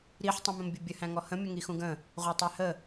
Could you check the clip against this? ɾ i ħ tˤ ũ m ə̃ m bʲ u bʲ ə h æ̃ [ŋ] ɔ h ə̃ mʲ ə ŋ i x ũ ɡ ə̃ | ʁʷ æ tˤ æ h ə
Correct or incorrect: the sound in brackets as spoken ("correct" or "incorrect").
correct